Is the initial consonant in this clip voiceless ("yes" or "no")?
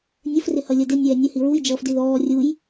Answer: no